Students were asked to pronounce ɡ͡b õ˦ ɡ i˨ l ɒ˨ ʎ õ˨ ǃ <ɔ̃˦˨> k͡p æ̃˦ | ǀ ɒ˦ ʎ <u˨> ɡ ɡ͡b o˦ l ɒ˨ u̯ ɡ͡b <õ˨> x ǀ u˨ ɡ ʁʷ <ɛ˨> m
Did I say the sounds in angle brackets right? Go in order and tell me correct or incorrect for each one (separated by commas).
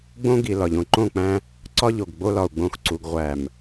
incorrect, incorrect, incorrect, incorrect